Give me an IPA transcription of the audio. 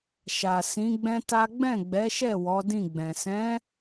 ʃ a˨ s ĩ˨˦ ɡ͡b ɛ̃˦ t a˦ ɡ͡b ɛ̃˦˨ ɡ͡b ɛ˨˦ ʃ ɛ˦˨ w ɔ˨˦ d ĩ˦˨ ɡ͡b ɛ̃˨ s ɛ̃˨˦

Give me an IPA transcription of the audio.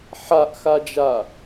ħ a ʔ x a d͡ʒ a

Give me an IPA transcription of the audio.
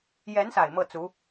j ɛ˧˥ n s a˨˩ ɪ̯ m ɤ˥˩ t͡s u˧˥

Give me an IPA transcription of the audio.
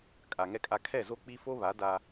kʼ a˨ ŋ ɛ˦ kʼ a˦ kʰ ɛ˦˨ z o˦ k͡p i˦ f o˦ β a˨˦ d a˦

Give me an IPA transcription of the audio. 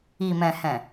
i˨ m ɛ̃˨ h ɛ̃˨

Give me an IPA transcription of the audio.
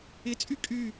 ɪ t͡sʼ y kʼ y

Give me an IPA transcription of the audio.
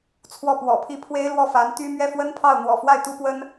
t͡sʰ w ɔ˥˩ p w ɔ̰˨˩ pʰ i˥˩ pʰ w e˥ ɪ̯ l w ɔ˥˩ f a˧˥ n t̪ y˥ m ɥ ɛ˥˩ f w ə˥ n pʰ ɑ˥˩ ʊ̯ n̪ w ɔ̰˨˩ f w a˥˩ ɪ̯ t̪ u˥ p w ə˥ n

